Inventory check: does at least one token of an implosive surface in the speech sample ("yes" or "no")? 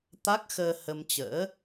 no